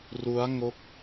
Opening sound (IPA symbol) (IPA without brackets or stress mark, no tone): r